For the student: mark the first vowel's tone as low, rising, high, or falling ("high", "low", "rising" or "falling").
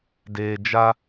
low